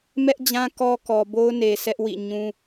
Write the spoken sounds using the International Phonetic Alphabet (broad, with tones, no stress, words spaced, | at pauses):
mɛ˦ʔd͡ʑã˦ kɔ˦ kɔ˨bo˦ʊ̯ne˨ sɛ˦ʔwḭ˦˨ ɲũ˦